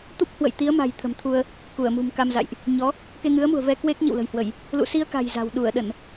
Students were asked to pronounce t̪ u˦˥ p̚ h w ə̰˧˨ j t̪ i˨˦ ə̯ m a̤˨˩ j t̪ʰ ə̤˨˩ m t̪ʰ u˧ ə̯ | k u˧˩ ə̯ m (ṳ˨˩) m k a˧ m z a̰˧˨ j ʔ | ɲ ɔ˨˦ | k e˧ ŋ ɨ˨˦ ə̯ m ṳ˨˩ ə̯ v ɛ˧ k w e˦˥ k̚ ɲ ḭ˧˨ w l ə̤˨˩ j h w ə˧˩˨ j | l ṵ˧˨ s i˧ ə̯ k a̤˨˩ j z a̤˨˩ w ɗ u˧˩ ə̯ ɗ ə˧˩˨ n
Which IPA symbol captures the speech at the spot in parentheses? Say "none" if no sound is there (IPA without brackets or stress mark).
ṳ˨˩